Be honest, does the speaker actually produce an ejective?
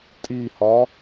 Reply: yes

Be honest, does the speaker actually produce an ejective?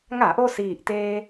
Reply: no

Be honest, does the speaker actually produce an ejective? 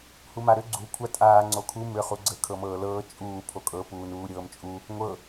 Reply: yes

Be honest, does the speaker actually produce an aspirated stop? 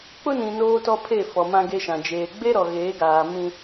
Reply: yes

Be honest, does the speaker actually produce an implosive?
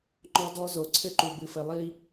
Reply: no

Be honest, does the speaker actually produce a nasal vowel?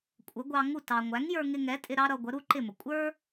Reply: no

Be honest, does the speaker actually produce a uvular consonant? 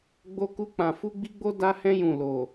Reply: no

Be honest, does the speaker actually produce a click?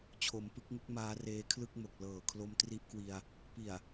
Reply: no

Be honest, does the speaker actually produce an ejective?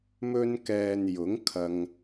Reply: no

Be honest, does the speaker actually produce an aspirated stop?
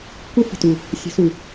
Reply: no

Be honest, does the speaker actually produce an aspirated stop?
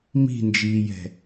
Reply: no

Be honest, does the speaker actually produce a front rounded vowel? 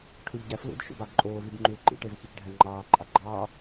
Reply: yes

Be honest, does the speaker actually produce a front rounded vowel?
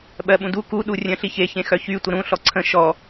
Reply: yes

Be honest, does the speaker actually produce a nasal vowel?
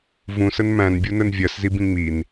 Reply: yes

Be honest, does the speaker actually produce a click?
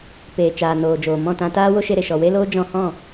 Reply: no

